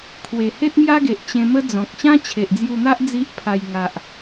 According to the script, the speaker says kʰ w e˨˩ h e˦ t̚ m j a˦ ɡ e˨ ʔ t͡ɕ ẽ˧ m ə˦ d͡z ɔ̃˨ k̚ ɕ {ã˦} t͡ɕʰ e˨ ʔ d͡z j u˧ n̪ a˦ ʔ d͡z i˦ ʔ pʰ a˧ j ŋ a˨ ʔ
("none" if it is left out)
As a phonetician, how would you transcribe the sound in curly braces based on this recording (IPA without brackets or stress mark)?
ã˦